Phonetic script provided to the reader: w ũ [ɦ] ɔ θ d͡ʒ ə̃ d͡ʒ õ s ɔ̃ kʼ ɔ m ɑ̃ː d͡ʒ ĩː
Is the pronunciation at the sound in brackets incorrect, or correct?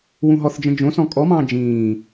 correct